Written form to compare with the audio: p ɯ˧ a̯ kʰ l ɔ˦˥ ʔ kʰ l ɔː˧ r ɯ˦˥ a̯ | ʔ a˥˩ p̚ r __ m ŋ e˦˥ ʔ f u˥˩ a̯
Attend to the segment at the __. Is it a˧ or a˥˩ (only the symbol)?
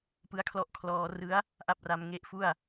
a˧